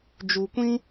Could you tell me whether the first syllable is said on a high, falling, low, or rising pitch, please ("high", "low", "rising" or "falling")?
low